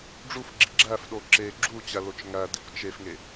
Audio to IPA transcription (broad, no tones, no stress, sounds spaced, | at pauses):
ɖ͡ʐ u f ɡ͡ǁ i ɡ͡ǁ æ f ɗ o ǁ e ɡ͡ǁ u t͡ɕ æ l o t͡ʃ ŋ æ d i kʷ t͡ʃ e f ŋ e